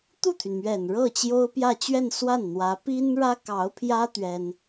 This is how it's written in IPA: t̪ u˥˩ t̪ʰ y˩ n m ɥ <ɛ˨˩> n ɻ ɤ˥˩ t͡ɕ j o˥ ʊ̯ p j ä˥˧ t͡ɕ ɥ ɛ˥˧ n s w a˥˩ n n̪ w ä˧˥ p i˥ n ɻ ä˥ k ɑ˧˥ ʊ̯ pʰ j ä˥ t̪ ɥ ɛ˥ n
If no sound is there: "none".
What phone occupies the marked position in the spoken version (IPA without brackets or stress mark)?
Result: ɛ˨˩